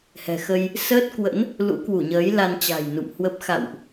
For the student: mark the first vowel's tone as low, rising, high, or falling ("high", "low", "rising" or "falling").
low